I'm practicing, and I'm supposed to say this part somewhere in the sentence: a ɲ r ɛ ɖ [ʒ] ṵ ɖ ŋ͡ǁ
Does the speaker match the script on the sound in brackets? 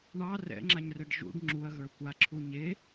yes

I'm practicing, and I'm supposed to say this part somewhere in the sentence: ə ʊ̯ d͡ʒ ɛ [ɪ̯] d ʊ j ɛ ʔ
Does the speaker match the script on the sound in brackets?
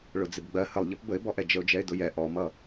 yes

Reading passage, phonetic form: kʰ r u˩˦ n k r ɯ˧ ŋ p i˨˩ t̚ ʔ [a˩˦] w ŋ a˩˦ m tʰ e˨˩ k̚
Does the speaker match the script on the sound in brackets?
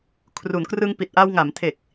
no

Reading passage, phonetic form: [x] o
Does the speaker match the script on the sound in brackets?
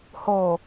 no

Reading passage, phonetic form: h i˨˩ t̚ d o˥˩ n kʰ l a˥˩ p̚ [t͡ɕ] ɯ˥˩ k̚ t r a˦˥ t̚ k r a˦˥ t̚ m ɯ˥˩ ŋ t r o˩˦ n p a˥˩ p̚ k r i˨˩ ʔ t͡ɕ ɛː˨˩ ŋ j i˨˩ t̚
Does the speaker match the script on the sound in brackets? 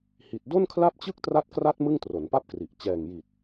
yes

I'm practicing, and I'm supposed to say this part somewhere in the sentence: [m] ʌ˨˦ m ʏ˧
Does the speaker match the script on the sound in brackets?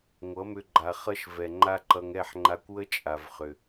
no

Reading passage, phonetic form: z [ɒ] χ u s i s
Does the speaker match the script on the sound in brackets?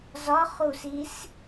yes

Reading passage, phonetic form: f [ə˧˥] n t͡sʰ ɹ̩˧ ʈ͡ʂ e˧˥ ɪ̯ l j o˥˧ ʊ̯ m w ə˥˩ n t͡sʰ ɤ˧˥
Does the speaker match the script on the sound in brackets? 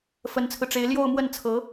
yes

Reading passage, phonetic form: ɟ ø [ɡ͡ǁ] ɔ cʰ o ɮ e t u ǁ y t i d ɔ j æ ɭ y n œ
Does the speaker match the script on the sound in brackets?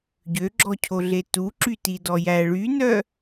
yes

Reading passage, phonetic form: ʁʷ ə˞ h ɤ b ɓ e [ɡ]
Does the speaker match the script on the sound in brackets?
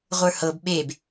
no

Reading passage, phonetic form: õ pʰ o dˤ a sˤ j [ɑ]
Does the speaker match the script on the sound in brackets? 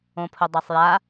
no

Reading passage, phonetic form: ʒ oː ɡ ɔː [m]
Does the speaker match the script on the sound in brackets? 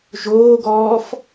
no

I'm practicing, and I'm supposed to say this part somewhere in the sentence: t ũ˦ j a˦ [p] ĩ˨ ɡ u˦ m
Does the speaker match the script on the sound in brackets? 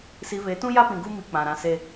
yes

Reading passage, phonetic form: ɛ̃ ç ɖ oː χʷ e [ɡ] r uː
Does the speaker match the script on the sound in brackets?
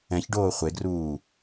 yes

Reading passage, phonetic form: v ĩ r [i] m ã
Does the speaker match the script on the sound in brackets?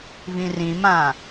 no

